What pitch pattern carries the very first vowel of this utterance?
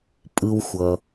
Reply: low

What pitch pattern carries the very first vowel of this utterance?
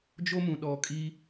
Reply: high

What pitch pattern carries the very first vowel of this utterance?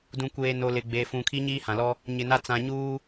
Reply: low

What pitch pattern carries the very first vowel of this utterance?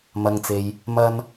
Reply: low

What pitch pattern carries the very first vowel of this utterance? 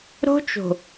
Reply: high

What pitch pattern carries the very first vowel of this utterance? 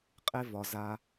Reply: high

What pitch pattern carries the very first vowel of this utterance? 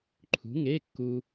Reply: rising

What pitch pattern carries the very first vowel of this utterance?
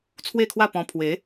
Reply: falling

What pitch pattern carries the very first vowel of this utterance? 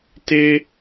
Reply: high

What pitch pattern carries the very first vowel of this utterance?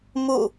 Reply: falling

